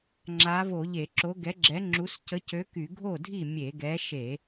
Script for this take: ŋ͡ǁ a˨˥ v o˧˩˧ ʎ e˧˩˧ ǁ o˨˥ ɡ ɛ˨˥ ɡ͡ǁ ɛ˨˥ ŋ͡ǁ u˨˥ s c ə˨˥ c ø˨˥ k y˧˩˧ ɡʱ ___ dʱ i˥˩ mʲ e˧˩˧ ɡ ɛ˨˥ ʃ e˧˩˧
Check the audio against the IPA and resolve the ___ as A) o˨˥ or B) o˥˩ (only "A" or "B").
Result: B